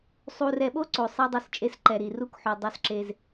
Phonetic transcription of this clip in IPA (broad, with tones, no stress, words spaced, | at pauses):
sˤu˨rɛ˨ɓo˦ ǀo˨sˤɛ˦dˤu˦˨st͡ʃʼe˦s ǃɛ˨ɾi˨ru˦kħu˨ dˤo˦sǁe˦z